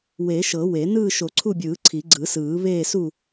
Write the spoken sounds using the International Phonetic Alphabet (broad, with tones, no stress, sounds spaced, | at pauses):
w e˨˩˦ ʃ ɤ˨˩˦ w e˨˩˦ n ɯː˦˨ ʃ o˨˩˦ ǀʰ u˦˨ bʲ ɯː˨˩˦ ǀʰ i˨˩˦ ɡ͡ǀ ɯ˨˩˦ s ɯː˨˩˦ β eː˦˨ s u˦˨